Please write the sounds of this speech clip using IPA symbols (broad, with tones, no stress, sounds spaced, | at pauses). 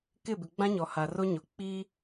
k ɪ˦˨ b ɪ˨ ɡ͡b ã˦ ɲ ɔ˨ h a˨ r o˦ ɲ o˨ k͡p i˦